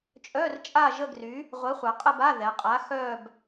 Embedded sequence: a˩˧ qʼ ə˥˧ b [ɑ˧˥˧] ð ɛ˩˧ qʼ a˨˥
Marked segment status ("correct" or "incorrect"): incorrect